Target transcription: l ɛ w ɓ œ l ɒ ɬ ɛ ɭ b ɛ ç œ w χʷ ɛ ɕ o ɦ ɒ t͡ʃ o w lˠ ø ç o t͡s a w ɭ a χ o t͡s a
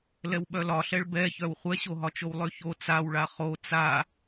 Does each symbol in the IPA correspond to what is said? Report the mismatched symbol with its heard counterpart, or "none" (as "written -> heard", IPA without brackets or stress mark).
none